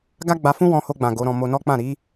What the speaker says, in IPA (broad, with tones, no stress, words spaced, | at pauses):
ɡa˦ɡ͡ba˧fũ˦ wɔ̃˧ho˧ɡ͡bã˨ ɡo˨˦ɾɔ̃˧ mo˧nɔ˦k͡pã˦˨ ɾi˨˦